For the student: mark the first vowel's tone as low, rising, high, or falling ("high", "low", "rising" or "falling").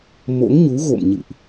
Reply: rising